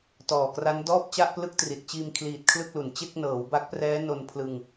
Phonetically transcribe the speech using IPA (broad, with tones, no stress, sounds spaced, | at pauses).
t ɔː˨˩ k r a˦˥ n d ɔː˥˩ p̚ t͡ɕ a˥˩ ʔ p l ɯ˥˩ k̚ t r i˨˩ t̚ t͡ɕ iː˧ m kʰ l iː˨˩ t̚ kʰ l ɯ˥˩ k̚ l u˨˩ n t͡ɕ e˥˩ k̚ n ɤː˩˦ w b a˦˥ k̚ p r ɛː˦˥ n o˧ n pʰ l ɯ˧ ŋ